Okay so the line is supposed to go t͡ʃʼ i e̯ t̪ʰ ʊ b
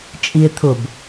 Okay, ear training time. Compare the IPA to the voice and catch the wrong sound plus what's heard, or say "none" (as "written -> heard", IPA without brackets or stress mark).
none